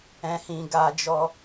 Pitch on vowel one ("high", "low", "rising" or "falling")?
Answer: high